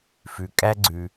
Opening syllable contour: low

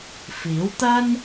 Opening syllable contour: rising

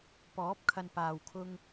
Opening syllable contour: rising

